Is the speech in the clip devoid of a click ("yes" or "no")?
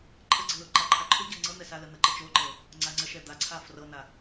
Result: no